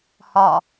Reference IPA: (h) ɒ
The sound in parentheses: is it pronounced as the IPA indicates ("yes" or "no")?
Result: yes